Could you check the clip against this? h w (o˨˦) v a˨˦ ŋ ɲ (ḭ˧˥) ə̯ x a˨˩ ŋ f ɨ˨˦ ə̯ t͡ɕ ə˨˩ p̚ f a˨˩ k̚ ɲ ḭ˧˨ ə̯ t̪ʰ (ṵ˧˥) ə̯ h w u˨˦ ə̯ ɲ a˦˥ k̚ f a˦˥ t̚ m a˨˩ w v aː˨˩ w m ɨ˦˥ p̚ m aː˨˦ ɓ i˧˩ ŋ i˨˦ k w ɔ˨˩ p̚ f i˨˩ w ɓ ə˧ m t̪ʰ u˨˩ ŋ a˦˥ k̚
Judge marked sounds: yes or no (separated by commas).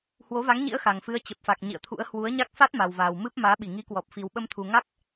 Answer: yes, yes, yes